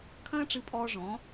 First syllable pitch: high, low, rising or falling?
high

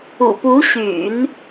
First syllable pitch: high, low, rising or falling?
low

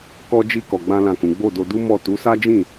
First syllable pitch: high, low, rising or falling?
high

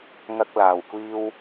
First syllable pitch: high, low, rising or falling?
high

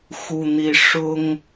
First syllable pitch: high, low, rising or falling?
high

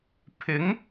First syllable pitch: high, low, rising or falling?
rising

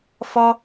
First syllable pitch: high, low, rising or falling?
high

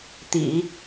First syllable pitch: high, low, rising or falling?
low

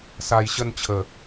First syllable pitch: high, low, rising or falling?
low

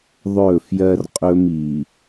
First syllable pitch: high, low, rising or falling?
falling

